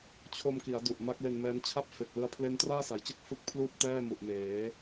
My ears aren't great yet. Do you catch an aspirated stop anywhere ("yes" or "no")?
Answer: yes